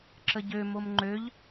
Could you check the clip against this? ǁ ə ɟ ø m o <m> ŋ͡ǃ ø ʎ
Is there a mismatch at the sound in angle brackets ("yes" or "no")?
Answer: no